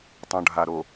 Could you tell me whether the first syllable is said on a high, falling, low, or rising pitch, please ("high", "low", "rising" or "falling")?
low